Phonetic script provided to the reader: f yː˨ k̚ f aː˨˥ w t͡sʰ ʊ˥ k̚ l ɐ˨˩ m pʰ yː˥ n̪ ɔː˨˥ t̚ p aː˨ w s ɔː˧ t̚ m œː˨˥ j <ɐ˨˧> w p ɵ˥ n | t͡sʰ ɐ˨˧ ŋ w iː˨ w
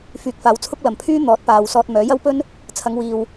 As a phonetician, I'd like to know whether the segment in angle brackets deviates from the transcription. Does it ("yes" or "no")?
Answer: yes